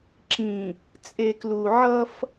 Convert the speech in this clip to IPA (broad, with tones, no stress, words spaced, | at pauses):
ǁĩ˨ | t͡sʼe˨klu˨ ʕʌ˦f